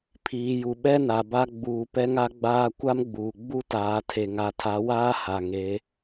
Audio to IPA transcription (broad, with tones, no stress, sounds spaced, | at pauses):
pʰ iː˨ j u˨ ɓ ɛ˦ n a˨ b a˦ ɡ͡b uː˨ p ɛ˦ ŋ a˦ ɡ͡b aː˦ kʷ a˦ m ɡ͡b uː˨ ɡ͡b u˦ t aː˨ tʰ e˨ ŋ a˨ tʰ a˨˦ w aː˦ h a˨ ŋ e˨˦